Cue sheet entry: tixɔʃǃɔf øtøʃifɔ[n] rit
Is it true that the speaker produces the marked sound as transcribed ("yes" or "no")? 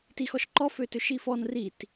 yes